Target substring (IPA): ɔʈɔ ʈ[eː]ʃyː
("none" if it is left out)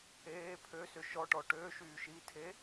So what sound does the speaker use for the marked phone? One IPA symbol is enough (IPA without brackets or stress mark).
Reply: øː